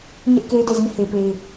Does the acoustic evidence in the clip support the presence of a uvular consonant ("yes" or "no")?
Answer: no